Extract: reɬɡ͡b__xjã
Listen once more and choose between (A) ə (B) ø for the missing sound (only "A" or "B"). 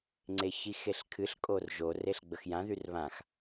A